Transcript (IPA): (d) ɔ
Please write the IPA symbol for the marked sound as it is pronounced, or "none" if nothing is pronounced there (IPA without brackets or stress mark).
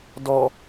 d